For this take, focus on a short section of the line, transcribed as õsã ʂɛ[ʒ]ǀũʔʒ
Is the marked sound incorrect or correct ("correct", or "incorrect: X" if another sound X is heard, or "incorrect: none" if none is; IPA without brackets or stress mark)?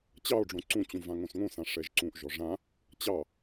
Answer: correct